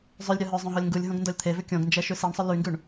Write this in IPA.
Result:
zˤʉlʲ ɾʲɔɦœzˤõ ɦɔlʲŋɡulʲɦõɡ ndɔlʲt̪ʰevʏ kʲõɡnd͡ʒɛ ʃʉsiɳsˤʏ lyŋɡʉɳ

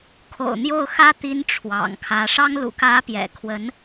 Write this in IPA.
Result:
kʰo̰˨˩ʊ̯ n̪jo˥˩ʊ̯xä˥ t̪i˥nʈ͡ʂʰwɑ̰˨˩ŋkʰä˧˥ ʂɑ˥ŋ lṵ˨˩kä˧˥pjɛ̰˨˩kʰwə˧˥n

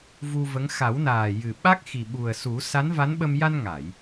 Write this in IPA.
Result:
vu˧və˧˥ŋ xa˨˩˦wnaː˨˩jɨ˨˩ ɓa˦˥k̚xi˨˩ɓu˨˩ə̯su˨˩˦ sa˧˥nva˧˥nɓə˧m ja˧nŋa˨˩˨j

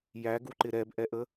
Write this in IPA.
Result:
jæɡuǃɪ ɾɛbʔɛʔə

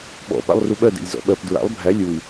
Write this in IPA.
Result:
ɓɔ̰ pa̰lˠruɓɜ dḛlʲzɔ̰ɓɜp dɹa̰lˠ bʱæ lʲui̯

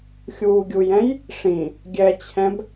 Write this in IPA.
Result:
xʲuːɡʲujɛ̃j | ʂĩ | ɡʲɛt͡ɕʰɛ̃b

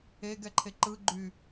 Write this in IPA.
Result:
eɡɛǃʰe ǃɯɡ͡ǃy

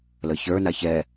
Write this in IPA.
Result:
ləçə˞na çɛ

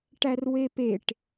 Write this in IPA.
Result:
ʈærwepeʈ

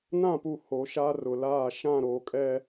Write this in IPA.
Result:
nã˦˨pu˨ ho˨˦ʃaː˦r ʊ˨laː˦˨ ʃã˦˨ɾoː˨kʼɛ˦

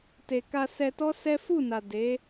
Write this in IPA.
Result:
te˨ka˧sɛ˧tɔ˦ sɛ˦ fu˦˨na˨ de˨˦

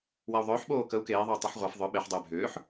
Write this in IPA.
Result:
wau̯ðˤʏːħɓoː kəu̯ keːðˤou̯ tˤiħʁʷaf ðˤʏ ɓeħ dˤʏːbʱʏːħ

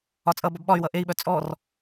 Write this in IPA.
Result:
ɒt͡sʼʌbɒb ɓɒy̯wʌ ʔei̯ɓœ t͡sʼɔr

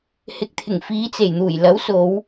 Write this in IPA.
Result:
hɪ˨k̚t̪ʰɪ˨˩ŋ fiː˨˧t͡se˨˩jn̪uː˨˩jlɐ˨˥w so˨˧w

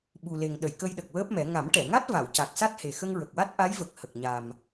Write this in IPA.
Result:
ɓu˨˩le˨˩ŋ ɗə˨˩˨jkə˧jɗə˨˩k̚ wəː˦˥p̚mɛ˨˩˦ ŋa˨˩˦mʈɛ˨˩˨ŋa˦˥t̚ va˨˩˨wca˨˩k̚sa˦˥t̚ he˨˩xə˧ŋɹə˨˩k̚wa˦˥t̚ ʔa˧˥jvə˨˩k̚ hə˨˩k̚ɲa˨˩m

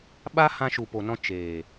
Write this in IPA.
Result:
ɓa˦ hã˧ʃu˨po˨nɔ̃˧ t͡ʃeː˨

